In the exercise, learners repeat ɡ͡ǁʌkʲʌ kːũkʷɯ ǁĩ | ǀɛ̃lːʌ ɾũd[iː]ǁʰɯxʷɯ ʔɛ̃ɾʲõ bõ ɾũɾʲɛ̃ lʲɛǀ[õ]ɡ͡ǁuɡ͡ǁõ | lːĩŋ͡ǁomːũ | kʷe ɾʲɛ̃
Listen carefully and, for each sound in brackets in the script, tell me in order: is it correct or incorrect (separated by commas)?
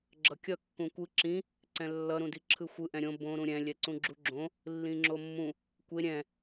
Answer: incorrect, incorrect